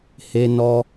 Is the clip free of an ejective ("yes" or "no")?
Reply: yes